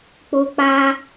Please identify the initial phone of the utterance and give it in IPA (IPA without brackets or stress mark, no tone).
k͡p